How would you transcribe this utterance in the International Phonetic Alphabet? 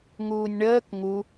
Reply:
ŋ uː nʲ ɳ əː k ŋ u

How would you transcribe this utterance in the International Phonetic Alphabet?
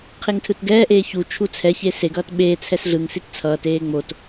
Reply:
qʰ e ŋ tʰ ɯ t ɡ ɛː ʔ eː ç u t͡ʃʰ u t͡sʰ ɛ ç e s e ɡ ʌː t ɓ eː t͡sʰ ɛ s ɮ ɯ ŋ s i t t͡sʰ ʌː t eː ŋ͡m o t

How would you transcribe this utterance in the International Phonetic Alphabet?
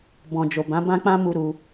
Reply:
b ɔ̃˨ d͡ʒ o˨ b ã˨˦ b ã˦ k͡p ã˦ m u˧ ɾ u˧

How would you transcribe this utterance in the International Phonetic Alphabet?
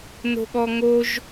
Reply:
n o̤ ɠ ɔ ŋ o ʒ

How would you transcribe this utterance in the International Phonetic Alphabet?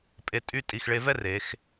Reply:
pʼ e˧ tʼ y˥˧ tʼ i˧˩ x ɭ e˧ v ɛ˥ r e˩˧ x

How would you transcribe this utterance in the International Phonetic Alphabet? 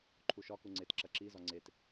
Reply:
ǃʰ u ʃ ɒ k u ŋ͡ǀ e t ǁ ɐ ǁ i z ɒ ŋ͡ǀ e t

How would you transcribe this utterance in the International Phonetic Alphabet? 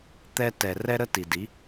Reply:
t̪ ɛ˧ t ɛ˨ r ɛ˦ ɾ ə˦ t i˨ d i˨˦

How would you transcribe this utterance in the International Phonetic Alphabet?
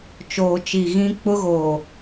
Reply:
t͡ʃ oː˨ t͡ʃ i˨ ɣ ĩ˦ k͡p ʊ˦ ɣ oː˨

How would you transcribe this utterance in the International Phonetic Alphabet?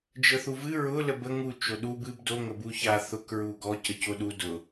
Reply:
d͡ʒ ə θ u v ɨ ɹ ʊ l ə b ə ŋ u t͡ʃ o ɗ u b ɨ b d o ŋ ə b u ç a θ ʊ k ɹ u ɡ ɔ c ə c o ɗ u d ʊ

